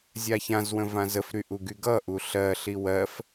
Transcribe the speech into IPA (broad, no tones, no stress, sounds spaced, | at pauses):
zʲ a ç ã z w ə̃ v ã z ə f ɾ y ʔ u ɡ y ɡ ʌ ʔ u ɬ ɜ ɬ i w ɜ f